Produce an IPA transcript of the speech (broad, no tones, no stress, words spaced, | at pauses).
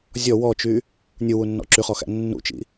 zʲɔ wɔt͡ʃy | nʲuwunːɔ̰ ǁyχɔxæ̰ nːṵt͡ʃḭ